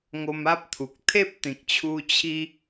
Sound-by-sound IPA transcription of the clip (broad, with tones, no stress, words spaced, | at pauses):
ŋo˧ma˦p̚t̪ʰu˨k̚ t̪ʰe˦p̚ t̪ĩ˨k̚t͡ɕʰu˦ t͡ɕʰi˦